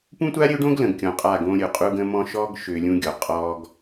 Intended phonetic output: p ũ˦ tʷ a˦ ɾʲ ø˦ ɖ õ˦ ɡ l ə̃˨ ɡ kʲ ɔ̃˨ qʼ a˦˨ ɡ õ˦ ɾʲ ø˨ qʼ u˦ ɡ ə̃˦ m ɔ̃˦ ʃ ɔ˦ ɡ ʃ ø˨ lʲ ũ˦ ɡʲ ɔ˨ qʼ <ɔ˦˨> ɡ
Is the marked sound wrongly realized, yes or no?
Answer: yes